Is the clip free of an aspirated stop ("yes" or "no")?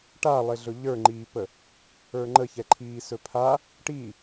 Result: no